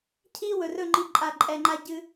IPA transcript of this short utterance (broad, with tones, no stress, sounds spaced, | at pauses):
cʰ i˦ w ɵ˨ r ɵ˦˨ ŋ͡ǃ i˧ ǃʼ a˧ ǃʼ ɛ˧ ŋ͡ǃ a˦ ɟ ɨ˦